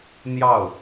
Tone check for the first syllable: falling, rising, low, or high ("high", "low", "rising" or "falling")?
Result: falling